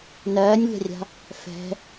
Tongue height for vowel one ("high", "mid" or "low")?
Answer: mid